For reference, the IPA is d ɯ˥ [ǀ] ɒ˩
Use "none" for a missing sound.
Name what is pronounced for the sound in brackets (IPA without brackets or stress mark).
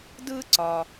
ǀ